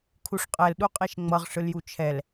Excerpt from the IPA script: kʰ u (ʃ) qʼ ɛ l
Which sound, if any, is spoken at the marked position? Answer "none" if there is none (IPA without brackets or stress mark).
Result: ʂ